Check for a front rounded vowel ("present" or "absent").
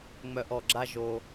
present